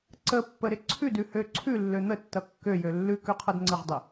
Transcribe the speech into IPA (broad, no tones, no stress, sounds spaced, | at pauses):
ǀ ə pː ə ɾ ɪ ǀʰ ʉ d ʉ h ø ǀʰ ʉ lː ø n̪ ə tː ʌ kː ø j ø lː ʉ k ø qʰ ʌ d ŋ͡ǀ ə ʁ dˤ ɪ